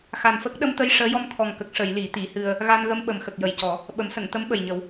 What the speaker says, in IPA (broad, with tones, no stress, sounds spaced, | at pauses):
x a˨˩ n f ə˦˥ k̚ ɗ ə˧ m t̪ ə˧ j ʂ əː˧˥ j ɔ˧ m t̪ʰ ɔ˨˩ ŋ k ə˨˩ k̚ ʂ ə˨˩˨ j l i˨˩˦ t̪ i˨˩˦ h ɨ˧ ə̯ | ɣ a˧ n ɣ ə˧ m ɓ ə˨˩ m x ə˨˩ k̚ j ə˨˩ j c ɔ˨˩˦ | ɓ ə˨˩˦ m s ə˨˩˨ ŋ t̪ ə˧˥ m ɓ ə˨˩ j ɲ ə˨˩˦ w